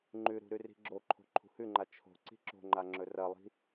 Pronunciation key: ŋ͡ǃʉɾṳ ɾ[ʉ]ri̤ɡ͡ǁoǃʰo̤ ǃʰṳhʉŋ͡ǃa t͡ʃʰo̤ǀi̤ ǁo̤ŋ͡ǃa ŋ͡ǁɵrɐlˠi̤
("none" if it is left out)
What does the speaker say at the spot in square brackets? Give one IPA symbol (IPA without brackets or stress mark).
ʉ